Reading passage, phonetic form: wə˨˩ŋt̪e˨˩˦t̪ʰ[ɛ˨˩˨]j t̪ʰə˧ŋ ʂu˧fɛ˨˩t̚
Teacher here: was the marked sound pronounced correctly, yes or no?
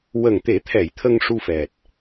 yes